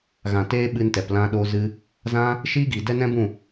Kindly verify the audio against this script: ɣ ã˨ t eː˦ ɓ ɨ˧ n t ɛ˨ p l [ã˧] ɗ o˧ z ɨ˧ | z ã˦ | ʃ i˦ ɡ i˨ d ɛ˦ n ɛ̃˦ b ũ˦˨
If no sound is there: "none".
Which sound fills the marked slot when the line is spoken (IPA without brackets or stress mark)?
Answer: ã˧